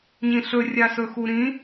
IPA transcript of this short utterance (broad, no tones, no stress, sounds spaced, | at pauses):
ɲ ĩ ɬ ɵ rʲ a s ɵ x u ɾ ĩ